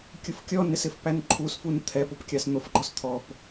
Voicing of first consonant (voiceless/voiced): voiceless